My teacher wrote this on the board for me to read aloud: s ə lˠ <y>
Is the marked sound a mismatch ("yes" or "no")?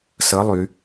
no